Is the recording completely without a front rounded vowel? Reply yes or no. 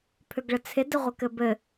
no